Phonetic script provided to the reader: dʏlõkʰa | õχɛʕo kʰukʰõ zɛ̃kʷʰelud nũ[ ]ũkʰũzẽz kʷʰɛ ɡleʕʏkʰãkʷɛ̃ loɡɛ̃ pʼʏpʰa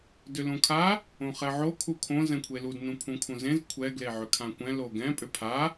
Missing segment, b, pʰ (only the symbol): pʰ